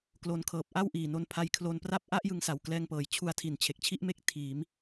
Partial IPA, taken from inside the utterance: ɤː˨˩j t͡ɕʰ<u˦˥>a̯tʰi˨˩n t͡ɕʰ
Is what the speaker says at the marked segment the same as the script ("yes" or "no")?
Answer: no